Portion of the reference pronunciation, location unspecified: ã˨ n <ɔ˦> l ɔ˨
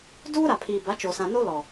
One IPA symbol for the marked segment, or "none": o˦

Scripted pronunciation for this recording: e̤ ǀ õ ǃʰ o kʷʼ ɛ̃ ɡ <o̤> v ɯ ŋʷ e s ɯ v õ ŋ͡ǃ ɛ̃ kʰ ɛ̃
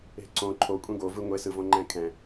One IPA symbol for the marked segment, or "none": o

